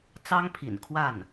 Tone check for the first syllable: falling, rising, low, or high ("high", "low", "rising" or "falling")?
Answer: high